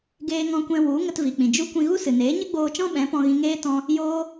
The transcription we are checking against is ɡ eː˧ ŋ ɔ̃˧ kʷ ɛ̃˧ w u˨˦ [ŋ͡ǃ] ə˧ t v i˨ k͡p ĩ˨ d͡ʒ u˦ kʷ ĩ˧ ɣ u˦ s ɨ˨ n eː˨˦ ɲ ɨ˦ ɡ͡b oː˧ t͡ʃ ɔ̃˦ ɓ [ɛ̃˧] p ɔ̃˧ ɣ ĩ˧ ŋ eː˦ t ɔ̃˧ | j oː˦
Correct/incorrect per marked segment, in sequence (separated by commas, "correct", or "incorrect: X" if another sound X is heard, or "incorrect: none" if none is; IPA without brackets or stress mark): incorrect: ŋ, incorrect: ɛ̃˨˦